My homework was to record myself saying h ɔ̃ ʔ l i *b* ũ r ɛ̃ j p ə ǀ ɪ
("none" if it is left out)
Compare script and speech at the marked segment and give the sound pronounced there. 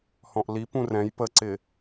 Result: p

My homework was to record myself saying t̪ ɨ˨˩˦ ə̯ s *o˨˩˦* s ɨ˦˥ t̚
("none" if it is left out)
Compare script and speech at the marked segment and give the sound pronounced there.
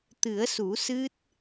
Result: u˨˩˦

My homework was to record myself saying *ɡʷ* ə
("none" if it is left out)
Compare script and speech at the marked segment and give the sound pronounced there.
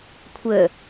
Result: kʷʰ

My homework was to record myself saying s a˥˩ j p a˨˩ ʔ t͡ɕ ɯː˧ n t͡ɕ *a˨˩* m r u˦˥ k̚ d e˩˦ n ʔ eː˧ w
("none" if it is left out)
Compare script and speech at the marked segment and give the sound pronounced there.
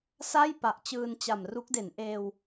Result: a˨˩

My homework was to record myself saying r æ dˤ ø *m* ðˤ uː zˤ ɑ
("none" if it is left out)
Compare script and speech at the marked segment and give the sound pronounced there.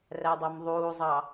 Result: m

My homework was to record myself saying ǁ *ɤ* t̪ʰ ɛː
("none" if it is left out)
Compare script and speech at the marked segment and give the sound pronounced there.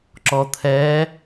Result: ɔ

